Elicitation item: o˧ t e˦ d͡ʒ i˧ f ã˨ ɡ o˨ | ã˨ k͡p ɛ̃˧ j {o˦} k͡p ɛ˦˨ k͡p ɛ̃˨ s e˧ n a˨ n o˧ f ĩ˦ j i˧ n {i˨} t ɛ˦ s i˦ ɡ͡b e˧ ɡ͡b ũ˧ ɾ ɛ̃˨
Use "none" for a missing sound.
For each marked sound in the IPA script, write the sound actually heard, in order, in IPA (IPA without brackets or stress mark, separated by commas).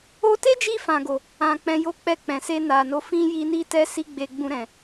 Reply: o˦, i˦